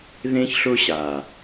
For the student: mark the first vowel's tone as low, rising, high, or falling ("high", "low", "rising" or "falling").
high